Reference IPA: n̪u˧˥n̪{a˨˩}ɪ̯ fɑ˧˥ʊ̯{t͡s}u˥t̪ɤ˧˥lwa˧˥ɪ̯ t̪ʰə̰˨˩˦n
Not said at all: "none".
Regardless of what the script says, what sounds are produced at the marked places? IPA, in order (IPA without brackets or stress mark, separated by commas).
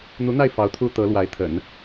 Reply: a˥˩, t̪ʰ